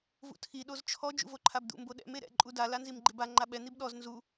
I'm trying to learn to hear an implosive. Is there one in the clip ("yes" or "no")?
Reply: yes